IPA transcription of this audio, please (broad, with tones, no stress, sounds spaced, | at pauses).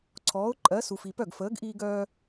ǀʰ ɔː˨˥ ʊ̯ ǃʼ ɜ˨˥ s u˨ f i˨ p œ˥˩ ɡ f əː˨˥ ɡ ʔ iː˦ ɡ œː˦